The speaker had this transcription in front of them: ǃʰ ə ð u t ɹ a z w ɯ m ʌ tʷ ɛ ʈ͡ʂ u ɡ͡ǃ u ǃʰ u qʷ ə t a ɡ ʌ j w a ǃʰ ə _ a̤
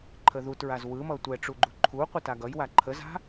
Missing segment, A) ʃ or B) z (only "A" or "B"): B